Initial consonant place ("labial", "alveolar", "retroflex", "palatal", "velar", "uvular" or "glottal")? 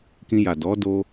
velar